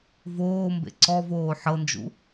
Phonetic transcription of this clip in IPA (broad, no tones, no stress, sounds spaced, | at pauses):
v oː m b ḛ ǀ ɔ v oː ħ ɤ n d͡ʒ ṵ